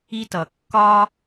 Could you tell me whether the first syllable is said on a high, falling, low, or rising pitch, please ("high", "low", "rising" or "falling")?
high